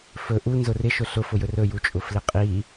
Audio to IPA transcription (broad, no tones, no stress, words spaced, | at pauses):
fɵ ʔu nzʊrɪʃʊ ɬʊfʊjɵ rɵjut͡ʃʼʊflɪ qʼi